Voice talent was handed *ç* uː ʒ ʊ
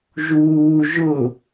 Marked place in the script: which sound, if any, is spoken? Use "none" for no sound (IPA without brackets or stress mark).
ʒ